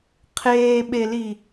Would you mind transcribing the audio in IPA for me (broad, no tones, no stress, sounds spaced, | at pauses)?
qʰ eː ɓ e l i